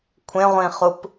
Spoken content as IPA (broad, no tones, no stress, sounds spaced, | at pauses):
kʷʰ ẽ ʁʷ ĩ χ u p